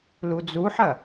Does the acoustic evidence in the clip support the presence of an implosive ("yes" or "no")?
no